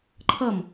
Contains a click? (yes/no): yes